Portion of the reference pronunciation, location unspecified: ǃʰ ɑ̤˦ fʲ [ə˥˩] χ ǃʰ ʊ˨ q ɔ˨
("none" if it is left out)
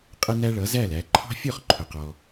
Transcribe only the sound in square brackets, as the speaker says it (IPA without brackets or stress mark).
ɔ˥˩